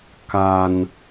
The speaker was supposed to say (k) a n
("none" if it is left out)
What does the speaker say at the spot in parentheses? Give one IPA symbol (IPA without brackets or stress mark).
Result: k